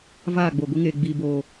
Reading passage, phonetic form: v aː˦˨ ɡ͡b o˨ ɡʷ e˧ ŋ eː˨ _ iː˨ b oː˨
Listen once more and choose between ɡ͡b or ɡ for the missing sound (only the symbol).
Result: ɡ͡b